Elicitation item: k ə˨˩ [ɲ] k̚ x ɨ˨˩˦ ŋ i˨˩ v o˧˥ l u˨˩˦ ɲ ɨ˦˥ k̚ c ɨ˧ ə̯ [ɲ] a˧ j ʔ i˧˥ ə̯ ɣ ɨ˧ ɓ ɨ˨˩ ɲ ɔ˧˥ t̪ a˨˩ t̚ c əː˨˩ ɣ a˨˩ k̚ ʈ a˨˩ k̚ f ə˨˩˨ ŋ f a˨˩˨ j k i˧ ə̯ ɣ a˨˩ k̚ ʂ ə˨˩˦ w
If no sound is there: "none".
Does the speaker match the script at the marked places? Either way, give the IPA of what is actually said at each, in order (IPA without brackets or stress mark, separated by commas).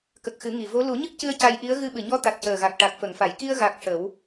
none, c